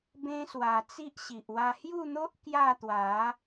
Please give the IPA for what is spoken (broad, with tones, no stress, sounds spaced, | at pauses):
b ẽ˦ s w a˧ t͡s i˦ ʔ ɕ i˨ ʔ w a˧ h j u˥˧ n̪ o˦ ʔ k j a˥˧ t̪ w a˨˦